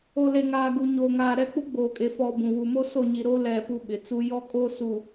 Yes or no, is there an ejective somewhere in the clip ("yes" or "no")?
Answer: yes